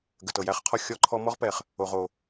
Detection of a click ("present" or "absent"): present